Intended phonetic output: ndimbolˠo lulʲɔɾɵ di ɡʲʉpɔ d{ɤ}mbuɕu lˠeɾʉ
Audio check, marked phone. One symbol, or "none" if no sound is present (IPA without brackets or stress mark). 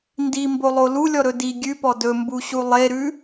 ɵ